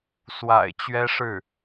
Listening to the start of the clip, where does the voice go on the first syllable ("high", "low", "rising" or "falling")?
low